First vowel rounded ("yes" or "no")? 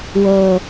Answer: yes